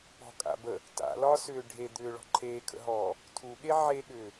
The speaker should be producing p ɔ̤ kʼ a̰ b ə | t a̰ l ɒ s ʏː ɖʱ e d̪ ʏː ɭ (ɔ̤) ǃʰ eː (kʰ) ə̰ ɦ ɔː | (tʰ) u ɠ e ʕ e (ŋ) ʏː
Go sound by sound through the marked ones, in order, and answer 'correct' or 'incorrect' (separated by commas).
correct, correct, correct, incorrect